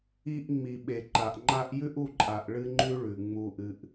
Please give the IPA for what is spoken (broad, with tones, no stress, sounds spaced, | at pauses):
i˧ ʔ ŋ͡m i˨ ɓ e˨ ǃ a˨ ʔ ŋ͡ǃ a˧ ʔ j ʉ˦ ʔ u˦˨ ǃʼ a˨ ʔ ɭ ɨ˧ ŋ͡ǃ ʉ˧ ɭ ʉ˨ ŋ͡m u˧ ʔ ɨ˧ ʔ